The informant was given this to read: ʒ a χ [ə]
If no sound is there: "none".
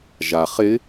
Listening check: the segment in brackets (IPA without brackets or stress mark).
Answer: ɪ